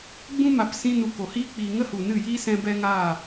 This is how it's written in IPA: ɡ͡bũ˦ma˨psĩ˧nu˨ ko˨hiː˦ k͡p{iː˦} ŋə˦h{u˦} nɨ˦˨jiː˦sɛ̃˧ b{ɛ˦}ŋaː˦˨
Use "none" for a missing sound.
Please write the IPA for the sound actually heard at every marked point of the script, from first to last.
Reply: iː˨, u˨, ɛ˦

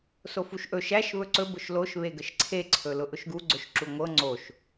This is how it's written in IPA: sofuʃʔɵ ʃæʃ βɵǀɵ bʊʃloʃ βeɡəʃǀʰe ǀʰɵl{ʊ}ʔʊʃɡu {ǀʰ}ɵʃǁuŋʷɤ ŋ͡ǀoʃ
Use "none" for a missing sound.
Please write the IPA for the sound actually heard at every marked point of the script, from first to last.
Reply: ʊ, ɡ͡ǀ

